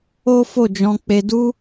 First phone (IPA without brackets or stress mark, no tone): o